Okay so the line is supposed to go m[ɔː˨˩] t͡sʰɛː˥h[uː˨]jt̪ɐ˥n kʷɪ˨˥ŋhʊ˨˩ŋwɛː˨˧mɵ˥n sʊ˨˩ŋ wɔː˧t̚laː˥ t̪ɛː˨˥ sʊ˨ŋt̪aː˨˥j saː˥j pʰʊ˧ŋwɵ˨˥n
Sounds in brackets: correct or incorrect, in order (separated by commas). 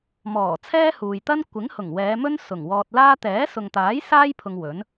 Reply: correct, correct